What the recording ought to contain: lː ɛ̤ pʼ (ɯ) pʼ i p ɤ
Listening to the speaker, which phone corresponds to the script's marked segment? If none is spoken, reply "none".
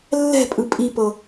ɯ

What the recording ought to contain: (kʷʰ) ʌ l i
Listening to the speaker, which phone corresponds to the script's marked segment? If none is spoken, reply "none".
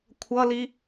kʷʰ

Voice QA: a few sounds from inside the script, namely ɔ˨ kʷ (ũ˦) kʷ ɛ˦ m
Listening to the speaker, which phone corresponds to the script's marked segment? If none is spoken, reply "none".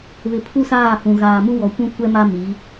ũ˦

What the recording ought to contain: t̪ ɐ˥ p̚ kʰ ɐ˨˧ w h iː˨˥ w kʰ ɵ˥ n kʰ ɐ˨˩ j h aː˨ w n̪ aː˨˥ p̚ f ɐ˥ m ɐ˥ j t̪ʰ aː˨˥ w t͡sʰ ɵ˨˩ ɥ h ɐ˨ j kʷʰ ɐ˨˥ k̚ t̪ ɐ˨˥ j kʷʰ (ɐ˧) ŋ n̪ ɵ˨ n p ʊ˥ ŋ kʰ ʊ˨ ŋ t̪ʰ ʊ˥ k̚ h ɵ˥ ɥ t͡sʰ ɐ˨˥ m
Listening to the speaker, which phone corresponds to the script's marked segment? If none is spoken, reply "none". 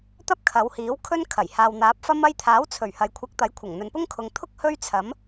ɐ˨˩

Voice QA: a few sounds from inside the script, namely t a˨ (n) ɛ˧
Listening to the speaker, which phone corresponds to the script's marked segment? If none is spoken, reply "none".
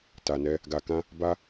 n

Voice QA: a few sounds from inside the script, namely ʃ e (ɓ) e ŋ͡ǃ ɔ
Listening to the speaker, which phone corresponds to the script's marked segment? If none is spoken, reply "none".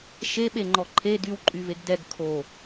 ɓ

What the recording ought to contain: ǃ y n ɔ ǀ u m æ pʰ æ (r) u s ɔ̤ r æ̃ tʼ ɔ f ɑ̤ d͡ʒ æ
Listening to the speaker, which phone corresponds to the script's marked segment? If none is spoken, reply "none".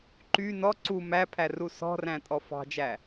r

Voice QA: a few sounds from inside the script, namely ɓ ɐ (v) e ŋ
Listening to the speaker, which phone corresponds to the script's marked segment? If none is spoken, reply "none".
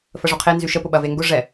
v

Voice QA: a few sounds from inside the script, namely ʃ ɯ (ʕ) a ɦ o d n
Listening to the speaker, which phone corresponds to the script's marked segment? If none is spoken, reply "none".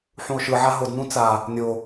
ʕ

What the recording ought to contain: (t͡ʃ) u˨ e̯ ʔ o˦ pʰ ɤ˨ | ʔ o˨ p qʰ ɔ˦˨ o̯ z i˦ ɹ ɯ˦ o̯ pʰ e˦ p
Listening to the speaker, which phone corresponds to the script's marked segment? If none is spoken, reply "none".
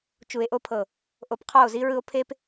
t͡ʃ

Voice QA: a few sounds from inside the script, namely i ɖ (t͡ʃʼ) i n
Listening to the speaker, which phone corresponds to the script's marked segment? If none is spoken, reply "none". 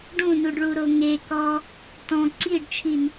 t͡ʃʰ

